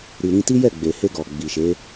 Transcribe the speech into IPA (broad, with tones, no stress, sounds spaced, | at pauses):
ɾ i˨ ɾ ĩ˧ t i˦ j ɛ˦˨ ɡ͡b e˨ h e˧ ɡ ɔ˨ ɡ͡b i˨ ʃ e˨˦